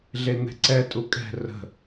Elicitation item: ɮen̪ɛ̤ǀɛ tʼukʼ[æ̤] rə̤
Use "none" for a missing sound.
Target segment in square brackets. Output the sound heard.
ɛ̤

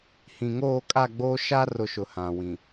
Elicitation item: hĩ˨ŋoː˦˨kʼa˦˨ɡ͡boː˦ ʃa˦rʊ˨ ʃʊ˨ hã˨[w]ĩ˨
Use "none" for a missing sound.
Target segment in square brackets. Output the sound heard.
w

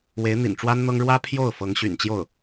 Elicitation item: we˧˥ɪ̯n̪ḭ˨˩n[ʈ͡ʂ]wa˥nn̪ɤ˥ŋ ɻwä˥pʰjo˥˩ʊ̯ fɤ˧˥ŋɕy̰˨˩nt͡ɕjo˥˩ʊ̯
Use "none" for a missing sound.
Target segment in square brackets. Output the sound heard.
ʈ͡ʂ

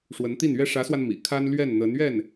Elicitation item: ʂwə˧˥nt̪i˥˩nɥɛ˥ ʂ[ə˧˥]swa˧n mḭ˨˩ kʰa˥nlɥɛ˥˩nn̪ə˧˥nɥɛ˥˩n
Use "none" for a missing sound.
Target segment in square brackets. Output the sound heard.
ä˧˥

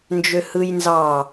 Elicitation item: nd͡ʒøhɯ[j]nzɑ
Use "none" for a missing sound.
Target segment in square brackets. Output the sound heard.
j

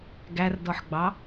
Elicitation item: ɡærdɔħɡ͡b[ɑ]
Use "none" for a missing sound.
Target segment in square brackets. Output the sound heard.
ɑ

